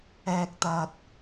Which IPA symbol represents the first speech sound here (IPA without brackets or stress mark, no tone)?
ɛː